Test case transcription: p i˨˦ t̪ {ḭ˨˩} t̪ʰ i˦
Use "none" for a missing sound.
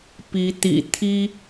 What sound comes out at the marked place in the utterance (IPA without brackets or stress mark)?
ḭ˨˩